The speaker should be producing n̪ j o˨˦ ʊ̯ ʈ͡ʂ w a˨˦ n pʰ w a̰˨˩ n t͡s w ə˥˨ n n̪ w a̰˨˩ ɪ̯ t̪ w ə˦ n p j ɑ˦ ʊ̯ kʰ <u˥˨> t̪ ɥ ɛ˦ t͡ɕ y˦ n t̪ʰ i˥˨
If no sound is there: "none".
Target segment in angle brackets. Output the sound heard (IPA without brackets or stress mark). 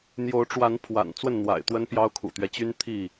ṵ˨˩